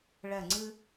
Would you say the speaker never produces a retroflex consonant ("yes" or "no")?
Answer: no